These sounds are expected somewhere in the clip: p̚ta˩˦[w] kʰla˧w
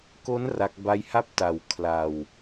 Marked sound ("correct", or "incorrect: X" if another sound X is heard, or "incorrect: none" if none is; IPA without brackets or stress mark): correct